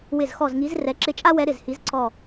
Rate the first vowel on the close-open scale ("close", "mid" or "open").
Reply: close